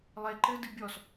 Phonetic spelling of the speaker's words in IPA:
lˠ e ǃ ɘ d ɨ bʲ ɔ s

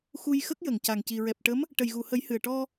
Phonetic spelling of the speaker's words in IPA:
x u˧ j x ə˦˥ k̚ j ə˨˩˨ ŋ c a˨˩ ŋ c i˨˩ ɹ ɛ˨˩ p̚ ʈ ə˧˥ m | ʈ ə˨˩ j ɣ u˨˩˨ h ə˨˩˦ j h ɨ˨˩ ə̯ ʈ ɔ˧

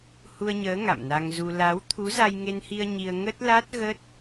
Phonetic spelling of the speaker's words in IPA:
h u˧ ə̯ ɲ əː˨˦ ŋ a̰˧˨ m n a˧ ŋ z u˧ l a˨˦ w t̪ʰ u˨˦ z a˧ j ŋ e˧ n h i˧ ə̯ ɲ i˧ ə̯ ŋ ə˦˥ t̚ l a˦˥ t̚ ɣ ə˦˥ t̚

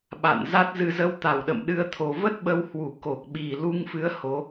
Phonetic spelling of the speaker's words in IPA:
ɓ a̰˧˨ n z a˦˥ t̚ z ɨ˧ z ə˧ w t̪ a˨˩ w ɗ ə̰˧˨ m ɗ ɨ˧ ə̯ t̪ʰ o˨˩ v ə˦˥ t̚ ɓ ə˧ w h w u˨˩ k o˨˩ k̚ ɓ i˨˩ l u˧ ŋ f ɨ˨˦ ə̯ h o˨˦

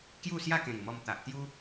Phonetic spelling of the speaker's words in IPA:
k j u˥˧ s j a˥˧ k ẽ˨˩ ŋ m ɔ˧ m t̪ a˨ ʔ t̪ j u˦

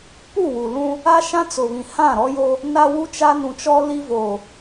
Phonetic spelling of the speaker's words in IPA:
p u˦˨ w u˨ l ũ˦ | a˦ ʃ ã˦ t͡s ʊ˨ β ĩ˨ h ã˦˨ ɾ ɔ˦ j o˦ | n a˦ w u˦ t͡ʃ a˦ n ũ˨ t͡ʃ ɔ˦ l i˦ v oː˨

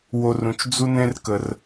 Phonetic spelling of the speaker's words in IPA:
w o˧ r ũ˨ t͡ʃ d͡z u˦ n ẽ˦ r k ə˧ r

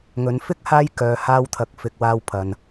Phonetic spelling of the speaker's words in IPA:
ŋ ɵ˨˧ n f ɪ˥ k̚ h aː˥ j k œː˨˧ h aː˧ w t̪ʰ ɐ˨ k̚ f ɪ˨ k̚ w aː˧ w pʰ ɐ˨ n

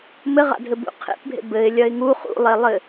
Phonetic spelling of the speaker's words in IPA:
m ɘ ʁ a̰ dʱ ɘ b ṵ qʰ ḛ p bʱ ḛ b ɘ ɪ̯ lʲ ɐ ɪ̯ ŋ u χ ṵ lˠ e lˠ ɘ

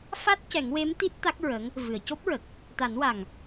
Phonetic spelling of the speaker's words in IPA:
f a˦˥ t̚ c ɛ˨˩˦ ŋ w e˧˥ m t̪ i˦˥ t̚ t̪ a˦˥ k̚ ɹ ə˧˥ ŋ | v ɨ˨˩˨ ə̯ c o˦˥ p̚ ɹ ə˨˩ k̚ | t̪ a˨˩˦ n w a˨˩ ŋ

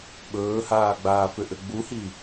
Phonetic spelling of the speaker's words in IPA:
ɓ ɵː h aː ɡ͡b aː f ʏ ʔ ɘ ɡ͡b u h i

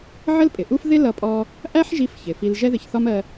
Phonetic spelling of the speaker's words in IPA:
ʕ ə˥ l pʼ ɪ˩ ʔ u˥ f ð ɪ˥ l ʌ˧ pʼ ɔ˧ | ʔ æ˥ ħ ʒ i˧ f ç ɪ˩ f i˧ l ʒ ɛ˥ ð ɪ˧ ç θ ɒ˥ m ɜ˧

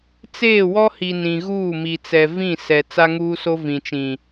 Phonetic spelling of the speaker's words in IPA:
t͡s eː˦˨ w ɔ˦ h i˨ n ĩ˨ ɣ uː˦˨ m i˨ t͡s ɛ˨ v ĩ˦˨ s ɛ˨ t͡s a˦ ŋ uː˦ s o˦ v ĩ˨ t͡ʃ ĩ˨

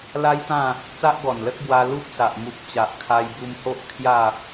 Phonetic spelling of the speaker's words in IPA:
l a˦ j t̪ ã˥˧ | t͡s a˦ ʔ ɡ ɔ˨˩ n l ə˦ k̚ b w a˧ l u˦ p̚ s a˨ ʔ m u˨ k̚ t͡ɕ a˨ ʔ kʰ a˧ j b u˧ m h o˦ ʔ kʰ j a˥˧

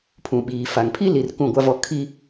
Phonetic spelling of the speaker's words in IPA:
pʰ ũ˨ ɓ iː˨ f a˨ ŋ pʰ i˦ l i˨ r k ũ˦˨ ɡʷ a˦ v ɔ˦ kʰ i˦

